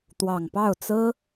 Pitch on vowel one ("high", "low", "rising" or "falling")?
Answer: low